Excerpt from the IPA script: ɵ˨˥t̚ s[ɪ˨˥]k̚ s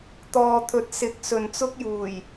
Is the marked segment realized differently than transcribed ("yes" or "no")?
no